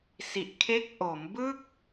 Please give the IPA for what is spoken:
si˨˩ʔkʰe˦˥k̚ ʔo˩˦mbɯ˥˩k̚

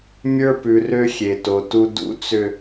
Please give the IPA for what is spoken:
mʲə˞˦pʉ˨rø˦ xʲe˨to˨tu˦ dṵ˦t͡sʏ˦

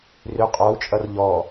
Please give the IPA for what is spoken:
rʏ qʼɔu̯t͡ʃʼʌr ʎɔ

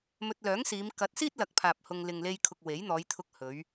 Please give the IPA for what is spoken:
mɵ˧t̚lœː˨˥ŋsiː˨˧m kɐ˨˥t̚siː˥t̚lɐ˨˥k̚pʰaː˨p̚ hʊ˧ŋ lɪ˨ŋle˧jkʰʊ˨k̚ we˨˥jn̪ɔː˨˧j t̪ʰʊ˧k̚hɵ˨˧ɥ

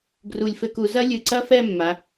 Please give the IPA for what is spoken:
ɡru˧˩lʲfɘ˥˧ku˧ zɐ˥lʲɨ˧˩ǀɐ˥˧fɛ˥˧ mːa˩˧

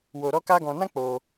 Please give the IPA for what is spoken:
wo˧ɾɔ˦ka˦ ɡɔ̃˧nã˦k͡po˧

